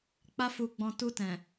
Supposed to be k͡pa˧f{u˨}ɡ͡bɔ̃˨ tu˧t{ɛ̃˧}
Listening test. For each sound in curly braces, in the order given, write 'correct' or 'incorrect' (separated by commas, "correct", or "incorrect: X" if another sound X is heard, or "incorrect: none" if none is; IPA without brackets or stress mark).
correct, incorrect: ɛ̃˨